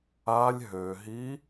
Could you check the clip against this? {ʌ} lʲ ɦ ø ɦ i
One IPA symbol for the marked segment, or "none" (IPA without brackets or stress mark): a